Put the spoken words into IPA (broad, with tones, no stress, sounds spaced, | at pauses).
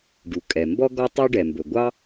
ɖ u˩ kʼ ɛ˩ m b ɔ˥ ɡ ɔ˥ tˤ y˥ ɖ ɛ˩ m b ɵ˩ ɡʷ ɑ˥